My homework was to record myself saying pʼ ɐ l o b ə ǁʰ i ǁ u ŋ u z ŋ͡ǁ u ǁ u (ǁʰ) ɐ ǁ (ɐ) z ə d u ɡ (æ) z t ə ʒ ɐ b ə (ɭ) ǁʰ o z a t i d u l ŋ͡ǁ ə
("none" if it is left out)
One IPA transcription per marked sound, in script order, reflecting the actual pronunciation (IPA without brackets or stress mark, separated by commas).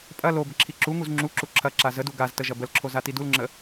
ǁʰ, a, a, l